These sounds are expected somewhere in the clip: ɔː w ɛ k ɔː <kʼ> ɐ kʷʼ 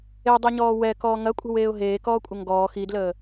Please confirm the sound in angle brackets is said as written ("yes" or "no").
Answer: no